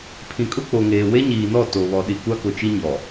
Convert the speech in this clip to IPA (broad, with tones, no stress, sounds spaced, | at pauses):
pʰ ĩ˨ kʼ ʊ˦ k͡p o˨ ŋ eː˨ w e˦ ɲ iː˨ n ɔ˦˨ t o˨ β ɔ˨ ɗ i˨ kʷ a˦ k ʊ˨ t͡ʃ i˦ ɲ ɔ˨